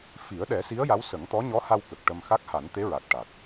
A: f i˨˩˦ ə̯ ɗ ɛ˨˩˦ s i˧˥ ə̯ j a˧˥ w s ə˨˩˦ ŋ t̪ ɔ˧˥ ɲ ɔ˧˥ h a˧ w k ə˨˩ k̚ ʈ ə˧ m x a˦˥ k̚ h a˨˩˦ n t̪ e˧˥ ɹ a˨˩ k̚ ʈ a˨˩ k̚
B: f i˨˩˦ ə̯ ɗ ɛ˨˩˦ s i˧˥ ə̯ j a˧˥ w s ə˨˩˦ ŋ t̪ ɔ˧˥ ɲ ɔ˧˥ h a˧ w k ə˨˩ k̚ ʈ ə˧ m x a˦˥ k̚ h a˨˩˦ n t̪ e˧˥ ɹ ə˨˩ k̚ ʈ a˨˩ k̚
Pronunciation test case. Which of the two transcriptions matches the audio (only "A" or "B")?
A